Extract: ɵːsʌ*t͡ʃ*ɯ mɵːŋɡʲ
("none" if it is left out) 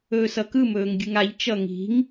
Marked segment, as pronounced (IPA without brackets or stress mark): k